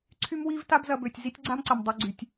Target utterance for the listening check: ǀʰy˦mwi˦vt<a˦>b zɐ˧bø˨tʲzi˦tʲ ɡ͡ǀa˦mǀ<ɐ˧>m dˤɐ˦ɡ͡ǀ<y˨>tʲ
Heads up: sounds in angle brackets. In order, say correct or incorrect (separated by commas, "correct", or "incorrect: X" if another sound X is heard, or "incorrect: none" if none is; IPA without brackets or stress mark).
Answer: correct, incorrect: ɐ˨, correct